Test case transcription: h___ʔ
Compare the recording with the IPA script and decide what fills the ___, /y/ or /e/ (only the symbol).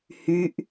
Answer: y